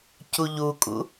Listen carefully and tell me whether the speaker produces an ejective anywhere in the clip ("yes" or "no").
yes